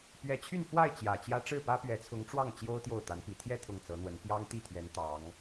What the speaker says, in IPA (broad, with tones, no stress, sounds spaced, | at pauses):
p ɥ ɛ˧˥ t͡ɕʰ y˥˧ n f w a˥˩ ɪ̯ t͡ɕ j ä˨˩ t͡ɕ j ä˥ ʈ͡ʂ ɻ̩˥˩ p ä˥ p ɥ ɛ˧˥ t͡sʰ ʊ˧˥ ŋ ʈ͡ʂ w ɑ˥˩ ŋ t͡ɕ j o˥ ʊ̯ t̪ j o˥˩ ʊ̯ t̪ a˧˥ n p i˨˩ t̪ʰ j ɛ˥˧ t̪ʰ ʊ˥˩ ŋ t͡s ɤ˧˥ n̪ w ə˧˥ n p j ɑ˥ ŋ t̪ i˥˩ t̪ʰ ɥ ɛ˧˥ n t̪ ɑ˧˥ ŋ